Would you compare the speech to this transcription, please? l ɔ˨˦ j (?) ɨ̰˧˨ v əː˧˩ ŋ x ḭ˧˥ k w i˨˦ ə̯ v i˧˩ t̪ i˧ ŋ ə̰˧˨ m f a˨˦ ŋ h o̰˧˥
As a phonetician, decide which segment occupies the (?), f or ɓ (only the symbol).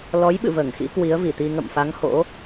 ɓ